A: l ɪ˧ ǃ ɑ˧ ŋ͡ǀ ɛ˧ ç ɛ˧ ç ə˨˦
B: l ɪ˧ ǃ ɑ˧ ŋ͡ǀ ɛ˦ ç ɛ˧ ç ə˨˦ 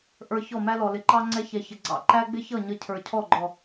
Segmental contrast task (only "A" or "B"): B